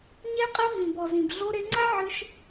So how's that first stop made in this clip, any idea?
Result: ejective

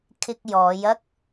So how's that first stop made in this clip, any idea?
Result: aspirated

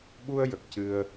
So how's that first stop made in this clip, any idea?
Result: implosive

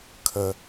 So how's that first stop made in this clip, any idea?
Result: aspirated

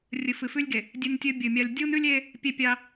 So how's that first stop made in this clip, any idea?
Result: plain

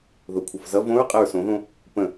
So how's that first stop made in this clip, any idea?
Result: aspirated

